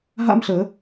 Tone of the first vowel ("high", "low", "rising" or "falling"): high